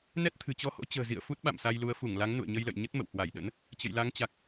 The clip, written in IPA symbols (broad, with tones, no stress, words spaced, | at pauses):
nɛ˦˥t̚t̪ʰɨ̤˨˩t͡ɕɔ˧ho̰˧˥ t͡ɕə̤ː˨˩zḭ˧˨ə̯ fu˦˥t̚ɓa̰˧˨msa˧jlu˨˦ə̯ fu˧˩ŋla˨˦ŋ nṵ˧˨ə̯ɲə˧jlə̰˧˨j ɲə˦˥t̚mə̰˧˨whwa˧˩jɗə̰˧˥n | t͡ɕə̰˧˨jla˨˦ŋt͡ɕa˨˩k̚